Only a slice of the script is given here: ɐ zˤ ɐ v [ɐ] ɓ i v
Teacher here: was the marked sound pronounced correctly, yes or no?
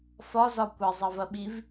yes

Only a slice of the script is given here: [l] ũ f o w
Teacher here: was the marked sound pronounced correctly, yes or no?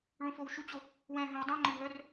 no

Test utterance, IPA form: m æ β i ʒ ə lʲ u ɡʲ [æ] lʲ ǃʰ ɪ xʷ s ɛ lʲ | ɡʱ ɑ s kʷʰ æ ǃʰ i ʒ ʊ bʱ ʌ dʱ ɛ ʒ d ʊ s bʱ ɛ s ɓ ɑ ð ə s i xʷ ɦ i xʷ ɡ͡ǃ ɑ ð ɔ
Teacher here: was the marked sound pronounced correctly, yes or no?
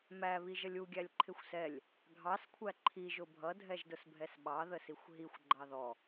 yes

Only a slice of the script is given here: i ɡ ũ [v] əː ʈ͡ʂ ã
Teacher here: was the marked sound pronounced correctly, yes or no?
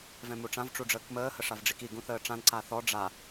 no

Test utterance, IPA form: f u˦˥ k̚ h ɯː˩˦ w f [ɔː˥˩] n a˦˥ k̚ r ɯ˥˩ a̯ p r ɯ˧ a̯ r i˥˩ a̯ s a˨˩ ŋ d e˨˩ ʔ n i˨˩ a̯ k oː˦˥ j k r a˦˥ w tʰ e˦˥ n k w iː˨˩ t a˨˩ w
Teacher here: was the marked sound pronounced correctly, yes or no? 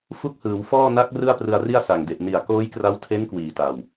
yes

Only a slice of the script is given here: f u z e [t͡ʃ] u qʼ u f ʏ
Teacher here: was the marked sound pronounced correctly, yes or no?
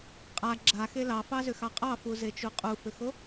yes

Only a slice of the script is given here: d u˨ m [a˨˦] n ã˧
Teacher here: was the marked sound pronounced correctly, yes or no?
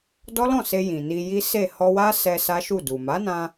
yes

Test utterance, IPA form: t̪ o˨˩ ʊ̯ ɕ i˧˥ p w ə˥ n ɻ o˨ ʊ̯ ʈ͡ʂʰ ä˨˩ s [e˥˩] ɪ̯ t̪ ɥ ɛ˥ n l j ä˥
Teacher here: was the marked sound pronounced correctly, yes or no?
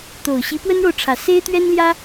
no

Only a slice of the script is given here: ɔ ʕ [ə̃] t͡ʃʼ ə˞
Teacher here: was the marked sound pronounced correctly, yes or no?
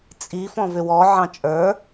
no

